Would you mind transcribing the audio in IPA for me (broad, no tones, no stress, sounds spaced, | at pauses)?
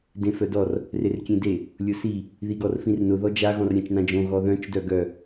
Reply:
d ẽ f œ d ɔ r | r e r kʲ ẽ d e | lʲ ʊ s i | ð i ɡ ɔ r f ĩ r n ʊ ð ɔ d͡ʒ a ɣ ɔ̃ r ɾʲ ã t͡ʃ n ã d͡ʒ õ ɣ ɔ ð œ̃ t͡ʃ d œ ɡ œ